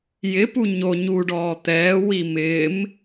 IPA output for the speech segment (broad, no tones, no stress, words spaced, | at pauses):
jɪpu ɲo ɲuɖɔː t̪ɛːwi mɪːm